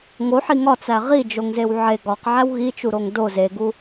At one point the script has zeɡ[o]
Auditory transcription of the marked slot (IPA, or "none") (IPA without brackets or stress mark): u